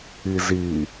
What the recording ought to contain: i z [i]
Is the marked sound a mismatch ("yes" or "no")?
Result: no